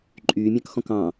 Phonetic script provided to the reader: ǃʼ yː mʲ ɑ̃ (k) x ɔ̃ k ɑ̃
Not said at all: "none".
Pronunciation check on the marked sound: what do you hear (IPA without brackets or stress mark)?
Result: k